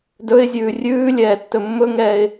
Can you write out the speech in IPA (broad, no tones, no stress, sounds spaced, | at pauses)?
d ɵ ɪ̯ zʲ ʉː rʲ ʉː lʲ ɛː tː ɵ mː ɵ ŋ ɛː ɪ̯